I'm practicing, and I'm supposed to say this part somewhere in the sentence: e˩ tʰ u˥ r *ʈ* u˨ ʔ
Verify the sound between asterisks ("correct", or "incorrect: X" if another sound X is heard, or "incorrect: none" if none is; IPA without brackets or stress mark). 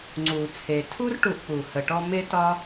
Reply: correct